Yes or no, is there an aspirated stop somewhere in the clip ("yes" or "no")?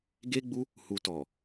no